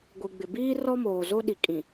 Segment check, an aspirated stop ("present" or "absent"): absent